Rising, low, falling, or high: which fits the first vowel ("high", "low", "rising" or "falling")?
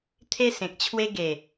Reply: high